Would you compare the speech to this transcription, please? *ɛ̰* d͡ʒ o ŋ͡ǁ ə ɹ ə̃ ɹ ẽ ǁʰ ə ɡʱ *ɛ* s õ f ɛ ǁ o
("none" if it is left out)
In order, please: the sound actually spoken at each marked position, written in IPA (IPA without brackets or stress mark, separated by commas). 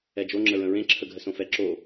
ɛ, ə